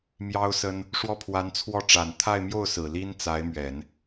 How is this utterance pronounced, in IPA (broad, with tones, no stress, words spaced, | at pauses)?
mjɑ˥ʊ̯sə˥n | ʂwɔ˥˩pʰwa˧˥nt͡sʰwɔ˥˩ ʈ͡ʂa˨˩n t̪ʰa˥˧ɪ̯mjo˥˩ʊ̯ sɹ̩˨˩li˥nt͡sa˧˥ɪ̯mɥɛ˨˩˦n